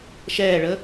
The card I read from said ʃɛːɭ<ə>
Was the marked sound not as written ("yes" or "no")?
no